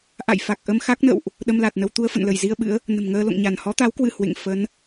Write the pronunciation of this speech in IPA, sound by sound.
ʔ a̰˧˨ j f a˨˩ k̚ ʔ ə˧ m x a˦˥ k̚ n ə̰˧˨ w ʔ | ɗ ə˧ m l a˨˩ t̚ n ə˧ w t̪ u˧ ə̯ f ə̰˧˨ n l ə˧˩ j z i˧ ə̯ ɓ ɨ̰˧˥ ə̯ | n ə̤˨˩ m ŋ əː˧ l o̰˧˨ ŋ ɲ a˧˩ n h ɔ˨˦ t̪ a˨˦ w k w ɨ˧˩ h w ḛ˧˨ ŋ f ə˨˦ n

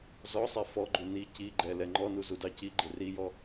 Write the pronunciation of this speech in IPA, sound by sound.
z ɔ sˤ ɛ f ɔ ɡ͡ǃ u n i c i ɡ͡ǃ ɛ l ɛ ŋ͡ǃ ɔ n u z u d ɑ c i ɡ͡ǃ ɪ r i j ɔ

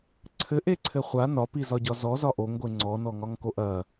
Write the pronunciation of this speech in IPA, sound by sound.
ǀʰ ɘ ʔ e ǀʰ ɘ χʷ a n ɒ p i z ɒ ɟ ɒ z ɔ z ɒ ʔ o ŋ ɡʷ e ŋ͡ǀ ɔ n ɔ ŋ ɒ ŋ k o ʔ ɐ

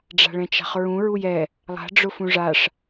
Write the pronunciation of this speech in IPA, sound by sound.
ɖ͡ʐ a̤ ɭ ɛ̃ t͡ʃ a̤ χ ɹ ũ ɹ u j ɛ | lˠ a̤ ɖ͡ʐ ʊ f ũ ʐ a ʂ

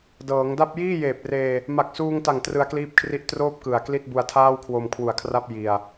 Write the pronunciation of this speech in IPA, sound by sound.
d ɤː˩˦ ŋ d a˥˩ p̚ j iː˥˩ j eː˨˩ p̚ r eː˧ | m a˨˩ k̚ s uː˧ ŋ t a˨˩ ŋ t r ɯ˧ a̯ k l iː˦˥ p̚ kʰ r i˦˥ ʔ t r oː˥˩ p̚ k ɯ˨˩ a̯ k l i˥˩ t̚ b u˧ a̯ tʰ aː˥˩ w kʰ w o˧ m kʰ w u˨˩ a̯ kʰ r a˥˩ p̚ j i˧ a̯

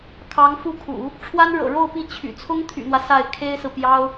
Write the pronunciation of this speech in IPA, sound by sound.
kʰ ɑ˧˥ ŋ f u˥˩ kʰ ṵ˨˩˦ | ʈ͡ʂʰ w a˥ n ɻ ɤ̰˨˩ ɻ o˥˧ ʊ̯ p i˥˩ t͡ɕʰ y̰˨˩ t͡sʰ ʊ˥ ŋ t̪ʰ y̰˨˩ n̪ w ä˦ s a˥˩ ɪ̯ kʰ e˥ ɪ̯ s ɹ̩˨ p j ɑ˥ ʊ̯

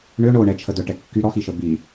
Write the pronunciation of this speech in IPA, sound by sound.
ɳ ø ɳ o ɳ ɛ t͡ʃʰ ə d œ ʈ ɛ kː y ɾ ɔ x i ʃ ə b i

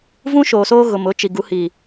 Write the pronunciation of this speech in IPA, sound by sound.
v ũ˦ ʃ oː˨ s oː˦ ɣ ʊ˨ m ʊ˨˦ t͡ʃ i˨ ɡ u˨˦ h iː˨

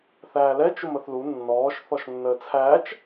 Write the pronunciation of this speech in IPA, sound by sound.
θ æː l ɛ t͡ʃ ʊ m ə θ l u nː ɔː ʃ θ ɔ ʃ nː əː t͡sʰ æː t͡ʃ

